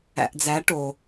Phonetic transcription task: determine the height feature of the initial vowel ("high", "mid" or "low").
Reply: low